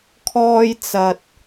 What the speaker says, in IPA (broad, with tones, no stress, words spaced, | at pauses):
kʰɔː˥jt͡sɐ˧t̚